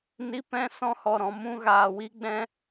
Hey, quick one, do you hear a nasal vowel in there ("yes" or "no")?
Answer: yes